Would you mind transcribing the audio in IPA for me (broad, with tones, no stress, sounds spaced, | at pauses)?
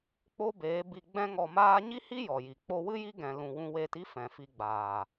k͡p o˦ b eː˨˦ b i˧ ɡ͡b ɛ̃˦ ŋ ɔ˧ m aː˦ ɲ i˦ h i˦ j ɔ˨ j i˨ k͡p o˧ w ɨ˦ j i˦ ɡ ɛ̃˧ l ũ˧ w ũ˧ w eː˧ t i˦ f ɛ̃˨ f i˧ ɡ͡b aː˨